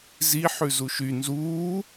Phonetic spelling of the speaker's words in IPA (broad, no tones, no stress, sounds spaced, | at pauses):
z i ħ ʉ z u ʃ y n z uː